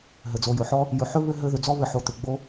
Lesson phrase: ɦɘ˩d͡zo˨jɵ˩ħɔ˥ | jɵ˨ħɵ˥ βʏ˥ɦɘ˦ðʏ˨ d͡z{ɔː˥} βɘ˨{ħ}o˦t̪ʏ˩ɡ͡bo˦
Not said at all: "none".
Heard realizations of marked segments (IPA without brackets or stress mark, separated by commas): ɔ˥, ħ